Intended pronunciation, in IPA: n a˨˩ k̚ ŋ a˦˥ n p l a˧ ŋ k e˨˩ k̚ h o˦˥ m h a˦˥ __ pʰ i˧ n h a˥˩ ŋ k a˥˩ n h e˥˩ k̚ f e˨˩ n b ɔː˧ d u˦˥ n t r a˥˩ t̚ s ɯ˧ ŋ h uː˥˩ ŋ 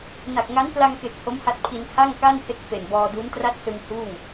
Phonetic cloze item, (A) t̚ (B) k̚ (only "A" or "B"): A